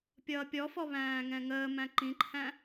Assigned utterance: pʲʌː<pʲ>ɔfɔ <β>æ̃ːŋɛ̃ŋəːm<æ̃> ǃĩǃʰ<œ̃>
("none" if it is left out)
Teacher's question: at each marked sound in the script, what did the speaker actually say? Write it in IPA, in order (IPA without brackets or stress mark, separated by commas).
pʲ, β, æ̃, æ̃